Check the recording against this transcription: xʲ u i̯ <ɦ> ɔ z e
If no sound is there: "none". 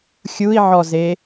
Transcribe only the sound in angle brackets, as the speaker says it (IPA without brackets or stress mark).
ʕ